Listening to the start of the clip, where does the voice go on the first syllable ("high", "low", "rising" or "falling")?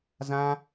high